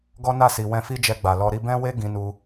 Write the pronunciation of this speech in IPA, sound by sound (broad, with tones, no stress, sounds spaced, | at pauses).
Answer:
ɡ ɔ˦ n a˦˨ s i˨ w ɛ̃˧ f i˦ d͡ʒ ɛ˧ ɡ͡b a˨ l ɔ˧ ɾ i˧ b ɛ̃˦ w e˦ ɡ ĩ˧ n u˧